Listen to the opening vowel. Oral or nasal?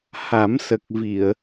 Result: oral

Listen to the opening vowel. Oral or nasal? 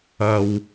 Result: oral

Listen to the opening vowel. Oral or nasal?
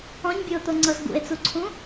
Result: nasal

